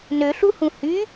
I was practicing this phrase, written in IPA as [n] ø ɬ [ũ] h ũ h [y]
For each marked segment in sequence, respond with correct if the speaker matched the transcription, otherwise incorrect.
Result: correct, incorrect, correct

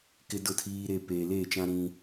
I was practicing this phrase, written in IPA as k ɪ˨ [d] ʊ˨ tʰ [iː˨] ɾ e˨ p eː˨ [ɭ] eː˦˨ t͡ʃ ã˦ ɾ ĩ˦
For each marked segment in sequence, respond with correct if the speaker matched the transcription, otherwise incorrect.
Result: correct, correct, incorrect

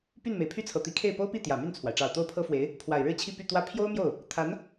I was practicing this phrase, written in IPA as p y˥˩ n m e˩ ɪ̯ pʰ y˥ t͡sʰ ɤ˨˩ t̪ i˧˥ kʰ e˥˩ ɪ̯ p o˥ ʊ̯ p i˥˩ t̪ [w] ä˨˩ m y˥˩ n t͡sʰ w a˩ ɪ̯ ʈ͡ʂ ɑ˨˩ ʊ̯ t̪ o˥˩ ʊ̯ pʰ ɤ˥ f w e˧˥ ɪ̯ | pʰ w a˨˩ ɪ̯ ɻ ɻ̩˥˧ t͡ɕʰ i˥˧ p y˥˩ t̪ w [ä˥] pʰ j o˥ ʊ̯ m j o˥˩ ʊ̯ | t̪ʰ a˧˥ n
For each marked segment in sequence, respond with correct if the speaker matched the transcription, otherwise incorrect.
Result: incorrect, correct

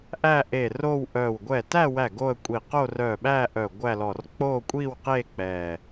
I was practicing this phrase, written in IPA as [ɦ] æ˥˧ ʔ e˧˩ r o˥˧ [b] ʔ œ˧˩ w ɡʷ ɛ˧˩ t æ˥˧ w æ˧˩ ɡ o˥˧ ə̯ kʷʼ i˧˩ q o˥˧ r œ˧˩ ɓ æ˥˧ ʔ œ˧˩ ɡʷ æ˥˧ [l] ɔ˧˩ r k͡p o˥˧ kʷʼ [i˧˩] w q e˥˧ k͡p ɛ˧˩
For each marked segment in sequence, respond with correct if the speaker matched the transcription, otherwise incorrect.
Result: incorrect, incorrect, correct, incorrect

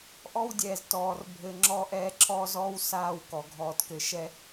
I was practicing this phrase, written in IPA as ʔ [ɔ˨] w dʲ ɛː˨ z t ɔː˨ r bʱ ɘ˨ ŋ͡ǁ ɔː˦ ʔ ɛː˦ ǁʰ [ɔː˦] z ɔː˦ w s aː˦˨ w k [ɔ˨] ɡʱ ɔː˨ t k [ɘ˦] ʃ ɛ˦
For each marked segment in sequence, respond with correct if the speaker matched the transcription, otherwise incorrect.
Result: incorrect, correct, correct, incorrect

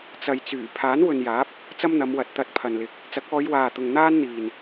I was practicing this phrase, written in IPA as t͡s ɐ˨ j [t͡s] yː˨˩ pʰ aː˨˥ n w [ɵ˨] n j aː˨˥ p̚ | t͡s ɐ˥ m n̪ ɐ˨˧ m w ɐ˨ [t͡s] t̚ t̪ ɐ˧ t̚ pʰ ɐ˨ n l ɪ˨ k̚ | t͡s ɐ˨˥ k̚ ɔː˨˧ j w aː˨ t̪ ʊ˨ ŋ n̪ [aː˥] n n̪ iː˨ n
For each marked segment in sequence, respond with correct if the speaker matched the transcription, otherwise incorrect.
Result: correct, correct, incorrect, correct

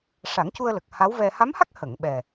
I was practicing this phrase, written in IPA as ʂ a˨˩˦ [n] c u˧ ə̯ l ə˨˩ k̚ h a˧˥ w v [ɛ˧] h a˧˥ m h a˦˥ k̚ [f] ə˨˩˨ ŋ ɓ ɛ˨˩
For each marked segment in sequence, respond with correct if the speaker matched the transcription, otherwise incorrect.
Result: incorrect, correct, incorrect

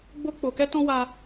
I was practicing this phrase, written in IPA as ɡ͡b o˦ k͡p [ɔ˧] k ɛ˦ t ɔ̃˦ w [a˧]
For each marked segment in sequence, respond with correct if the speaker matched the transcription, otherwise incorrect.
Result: incorrect, incorrect

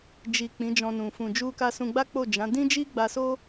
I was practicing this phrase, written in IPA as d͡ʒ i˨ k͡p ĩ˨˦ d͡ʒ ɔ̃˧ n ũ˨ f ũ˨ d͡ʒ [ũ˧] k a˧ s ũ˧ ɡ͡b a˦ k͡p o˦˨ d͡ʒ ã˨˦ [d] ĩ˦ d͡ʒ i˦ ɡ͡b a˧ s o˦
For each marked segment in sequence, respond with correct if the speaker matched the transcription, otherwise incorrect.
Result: incorrect, correct

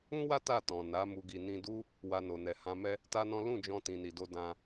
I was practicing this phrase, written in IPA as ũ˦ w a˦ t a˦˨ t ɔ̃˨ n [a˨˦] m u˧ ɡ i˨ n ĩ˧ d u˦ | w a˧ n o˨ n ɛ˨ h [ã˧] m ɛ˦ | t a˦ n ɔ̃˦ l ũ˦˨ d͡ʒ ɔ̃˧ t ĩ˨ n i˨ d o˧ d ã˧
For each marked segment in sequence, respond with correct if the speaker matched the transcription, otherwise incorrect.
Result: correct, correct

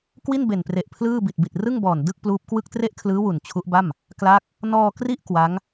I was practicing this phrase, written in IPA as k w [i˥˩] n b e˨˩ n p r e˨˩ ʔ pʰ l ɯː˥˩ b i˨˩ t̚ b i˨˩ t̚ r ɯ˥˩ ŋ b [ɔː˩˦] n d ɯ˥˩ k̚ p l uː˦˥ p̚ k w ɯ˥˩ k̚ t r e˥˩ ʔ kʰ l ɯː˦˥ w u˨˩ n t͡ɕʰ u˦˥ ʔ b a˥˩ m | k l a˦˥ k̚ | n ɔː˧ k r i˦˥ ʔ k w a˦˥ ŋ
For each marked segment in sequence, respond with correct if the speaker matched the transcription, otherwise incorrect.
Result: correct, incorrect

